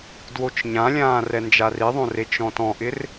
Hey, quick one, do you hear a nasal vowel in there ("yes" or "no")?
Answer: yes